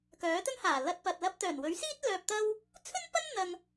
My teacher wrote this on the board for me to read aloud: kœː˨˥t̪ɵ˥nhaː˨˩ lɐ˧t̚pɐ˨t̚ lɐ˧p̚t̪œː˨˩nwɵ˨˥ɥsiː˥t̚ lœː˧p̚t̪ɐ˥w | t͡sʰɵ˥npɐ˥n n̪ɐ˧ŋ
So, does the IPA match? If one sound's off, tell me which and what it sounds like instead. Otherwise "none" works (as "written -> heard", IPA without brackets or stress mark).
none